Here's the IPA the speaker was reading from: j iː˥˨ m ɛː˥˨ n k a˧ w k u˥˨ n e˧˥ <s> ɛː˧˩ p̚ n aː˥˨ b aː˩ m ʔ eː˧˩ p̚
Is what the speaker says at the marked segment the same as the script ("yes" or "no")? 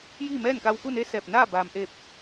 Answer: yes